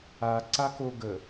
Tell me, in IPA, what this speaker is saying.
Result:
aǀako ɡə

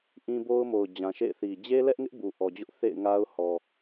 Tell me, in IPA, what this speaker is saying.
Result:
ʔĩ˦ bo˦ʊ̯mo˨ʊ̯ d͡ʑã˨ʃḛ˦˨ɪ̯θi˨ d͡ʑe˦lɛ˦ʔŋɪ˦ʔ bu˨ʔɔ˨d͡ʑʊ˦ʔ θḛ˦˨ɪ̯ŋa˦ʊ̯ hɔ˨

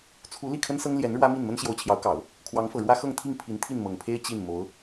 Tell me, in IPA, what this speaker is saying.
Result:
t͡sʰu˧˥ li˥˩kʰə˥nsɤ˥ŋ ljɛ˧˥n ɻwä˥mi˥˩n mə˥nɕjo˧˥ʊ̯t͡ɕʰjɑ˧˥ʊ̯kɑ˨˩˦ʊ̯ | kʰwɑ˧˥ŋfɤ˨˩ ɻwä˥ xɤ˥˧ŋt̪ʰi˥˩ŋpʰi˧˥n t̪ʰi˥˩nmɤ˨˩ŋpʰe˥ɪ̯ t͡ɕi˥˩n mo˧˥ʊ̯

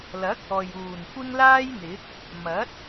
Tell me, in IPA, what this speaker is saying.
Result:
lɐ˨˥k̚ɔː˨j uː˨˩n kʷɪ˥ŋlaː˥jn̪ɪ˨˥k̚ | mɐ˨˥t̚

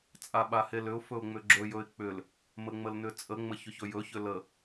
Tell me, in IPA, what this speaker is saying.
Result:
t͡sʼaɓahelʏʊ̯ fɵʊ̯ŋ͡mʏɡ͡ǁɵ jɵɪ̯k͡pʏl | məŋ͡məlnʏt͡sʼə ŋ͡məçʏçɵjɵ çʏlə

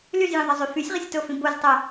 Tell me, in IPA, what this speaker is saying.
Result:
lyzjĩðˤɐzˤy fysʲʁəsʲtofĩ boztˤɐ

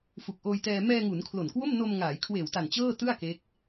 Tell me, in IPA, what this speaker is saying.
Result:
fu˨˩k̚ʔoː˧jtɛː˧ mɛː˧ ŋu˩˦n kʰlo˨˩nkwo˥˩m no˧mŋaː˩˦j kʰweː˨˩wta˨˩n t͡ɕɤː˥˩tɯ˥˩a̯ ke˦˥k̚

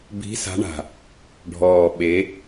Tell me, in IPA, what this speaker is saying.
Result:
bi̤˨˦sa̤˨˦ɳa̤˨˩ | ɖʱɔː˨˩ ɓe˨˦

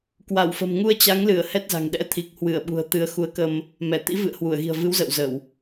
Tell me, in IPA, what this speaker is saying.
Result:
kwa˧˩wfə̤˨˩m ŋu˧ə̯ t͡ɕa˨˦ŋlɨ˧˩ə̯ hɛ˦˥t̚za̤˨˩ŋ ɗɛ̰˧˥t̪ʰi˨˩k̚hwɨ˧˩ə̯ ɓṳ˨˩ə̯t̪ɨ˨˦ə̯ xu˨˦ə̯kə˧m | mɛ˧˩ t̪ḭ˧˥vɨ̰˧˨ə̯ hwu˧˩ə̯ɣi̤˨˩ə̯ vɨ˨˦wzə̰˧˨wzə˧˩˨w

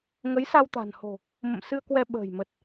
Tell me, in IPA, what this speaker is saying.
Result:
ŋə˨˦jsa˧w t̪a̤˨˩nho̤˨˩ | mə̰˧˨msɨ˧ə̯kwɛ˧ ɓə̤ː˨˩jmə˨˩t̚

